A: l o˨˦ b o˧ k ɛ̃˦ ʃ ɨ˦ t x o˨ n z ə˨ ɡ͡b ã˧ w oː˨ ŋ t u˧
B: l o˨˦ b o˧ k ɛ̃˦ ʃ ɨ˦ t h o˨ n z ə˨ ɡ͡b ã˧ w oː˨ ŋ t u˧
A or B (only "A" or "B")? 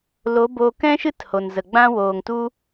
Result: B